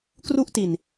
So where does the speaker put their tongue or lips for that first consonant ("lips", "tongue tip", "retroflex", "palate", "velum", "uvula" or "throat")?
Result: velum